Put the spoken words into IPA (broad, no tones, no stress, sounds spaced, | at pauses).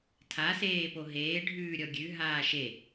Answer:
tʰ a s eː p o ɦ eː ɖʱ ʉː ɾʲ ɔ ɡʲ ʉ ɦ aː ʃ e